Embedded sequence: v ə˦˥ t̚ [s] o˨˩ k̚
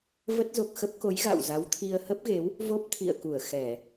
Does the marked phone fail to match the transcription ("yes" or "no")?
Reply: yes